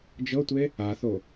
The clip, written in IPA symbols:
d͡ʒɤtʷe | aθo

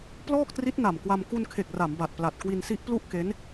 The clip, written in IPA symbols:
plɔː˥˩k̚tri˦˥t̚na˨˩mkwa˧m ku˧nkʰe˨˩k̚ra˩˦m ba˨˩t̚pla˨˩t̚ kwi˧nsi˦˥ʔplu˥˩ʔ ke˦˥n

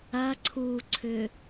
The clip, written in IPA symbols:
ɐ ǀʰu ǀʰʏ

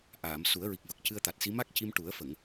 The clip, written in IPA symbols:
ʔaː˨˩˨m su˨˩˦ə̯ɹi˨˩k̚və˨˩k̚ cɨ˧ə̯t̪a˨˩t̚si˧˥ ma˦˥k̚ci˧mʈu˨˩˦ə̯ fə˨˩˨ŋ

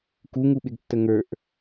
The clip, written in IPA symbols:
kuŋuɓɪɡtːə ŋə˞ʔ

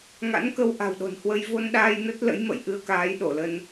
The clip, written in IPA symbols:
ŋa̰˧˥nkə˧w ʔa̤˨˩wɗo̤˨˩nhwə˧j vo˧nɗaː˧j nə˦˥t̚ lə̰˧˥jmə̰˧˨jʔɨ˧ə̯kaː˨˦j ɗo˧˩lə˧n

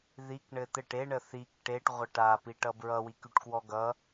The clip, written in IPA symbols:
ðik ɳɘt̪ɘʈ e ɳəθik ʈeʈ ʁʷʌʈa piʈʌbɹʌ wikyʈkwɔɡʌ

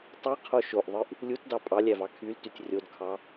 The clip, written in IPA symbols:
tˤiqʰo ʃoʔðˤɯʔ | lʲutdɑ pʼɑlʲævɑ kʰyltytʲ rʲodkʰɑ

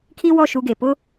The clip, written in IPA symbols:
kʰi˦wɔ˦˨ ʃu˦ɡe˨ pʊ˦

